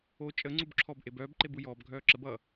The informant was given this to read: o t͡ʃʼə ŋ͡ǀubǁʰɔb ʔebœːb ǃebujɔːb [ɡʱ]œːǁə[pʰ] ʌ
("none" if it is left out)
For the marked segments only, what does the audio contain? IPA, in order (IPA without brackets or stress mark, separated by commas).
ɡʱ, b